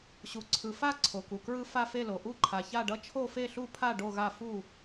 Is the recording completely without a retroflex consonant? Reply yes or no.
no